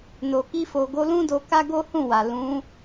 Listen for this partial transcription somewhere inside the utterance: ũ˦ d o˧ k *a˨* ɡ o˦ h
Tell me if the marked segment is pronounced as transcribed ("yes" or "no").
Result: no